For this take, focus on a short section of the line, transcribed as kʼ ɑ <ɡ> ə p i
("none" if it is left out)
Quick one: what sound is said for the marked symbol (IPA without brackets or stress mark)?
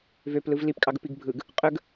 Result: ɡ